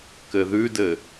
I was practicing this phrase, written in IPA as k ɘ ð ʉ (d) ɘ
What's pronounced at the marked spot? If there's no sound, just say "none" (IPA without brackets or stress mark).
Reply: d